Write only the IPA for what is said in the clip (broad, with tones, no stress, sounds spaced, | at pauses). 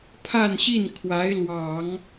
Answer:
pʰ a˥˧ n ɕ i˥˩ n kʰ w a˧˥ ɪ̯ l w ɑ˨˩˦ ŋ